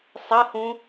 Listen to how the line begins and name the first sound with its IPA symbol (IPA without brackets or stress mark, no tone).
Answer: sˤ